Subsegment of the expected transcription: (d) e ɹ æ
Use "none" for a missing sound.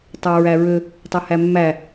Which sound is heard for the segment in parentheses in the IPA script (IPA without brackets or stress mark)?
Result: tˤ